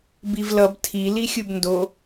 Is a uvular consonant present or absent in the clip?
absent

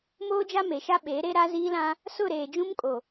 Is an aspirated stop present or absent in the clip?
absent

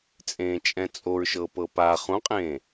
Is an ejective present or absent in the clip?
present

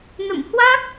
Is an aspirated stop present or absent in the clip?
absent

